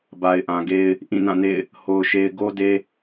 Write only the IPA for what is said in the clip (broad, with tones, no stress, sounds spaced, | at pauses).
b a˨ ɪ̯ ʔ ã˨ ɡ e˦ ɪ̯ | ʔ ĩ˦˨ n ã˦˨ n ḛ˦˨ ɪ̯ | h o˨ ʊ̯ ʃ e˨ ɪ̯ ɡ o˦ d e˦